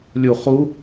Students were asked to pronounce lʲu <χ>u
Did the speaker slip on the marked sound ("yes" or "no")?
no